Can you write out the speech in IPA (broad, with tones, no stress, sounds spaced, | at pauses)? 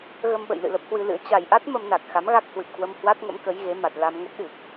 ɣ ə˧ m ɓ ə̰˧˨ j l ɨ̰˧˨ l ə˦˥ p̚ h w ɨ˧ l ɨ̰˧˥ ə̯ t͡ɕ a˨˩ j ʔ a˦˥ t̚ m ə˧ m n a˨˩ k̚ x a˨˦ m ɣ a˦˥ k̚ h w ɨ˨˩ p̚ k w ə˧ m h w a˦˥ t̚ ŋ ə̰˧˥ m k ə˨˦ j ɣ e˨˦ m a˨˩ t̚ l a˧ m ŋ ə˦˥ p̚ ɗ ɨ˨˩ k̚